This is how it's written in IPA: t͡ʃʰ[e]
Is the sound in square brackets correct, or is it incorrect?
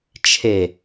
correct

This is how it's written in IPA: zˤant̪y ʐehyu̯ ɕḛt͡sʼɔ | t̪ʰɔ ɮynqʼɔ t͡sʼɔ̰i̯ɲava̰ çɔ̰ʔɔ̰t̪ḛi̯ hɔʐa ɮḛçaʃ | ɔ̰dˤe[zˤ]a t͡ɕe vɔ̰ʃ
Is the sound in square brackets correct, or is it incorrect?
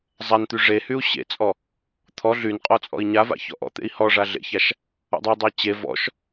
incorrect: dˤ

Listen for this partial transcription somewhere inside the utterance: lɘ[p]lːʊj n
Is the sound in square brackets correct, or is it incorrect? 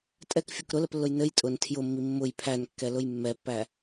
correct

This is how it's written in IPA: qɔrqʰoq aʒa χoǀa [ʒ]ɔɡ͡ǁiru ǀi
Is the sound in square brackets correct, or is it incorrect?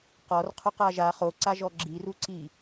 correct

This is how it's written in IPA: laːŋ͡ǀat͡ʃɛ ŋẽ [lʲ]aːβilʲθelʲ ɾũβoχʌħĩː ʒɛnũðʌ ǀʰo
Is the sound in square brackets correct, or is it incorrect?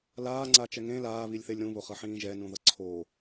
incorrect: l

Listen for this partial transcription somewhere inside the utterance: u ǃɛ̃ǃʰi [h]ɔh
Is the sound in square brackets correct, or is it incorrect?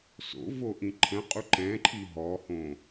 incorrect: ɦ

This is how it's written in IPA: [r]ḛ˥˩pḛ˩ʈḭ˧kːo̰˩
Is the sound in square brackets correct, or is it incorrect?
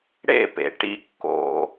incorrect: ɽ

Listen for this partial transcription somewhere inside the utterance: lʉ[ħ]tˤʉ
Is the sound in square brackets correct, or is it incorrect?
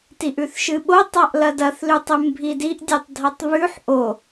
incorrect: none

